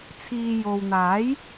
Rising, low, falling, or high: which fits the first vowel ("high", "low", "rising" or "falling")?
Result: low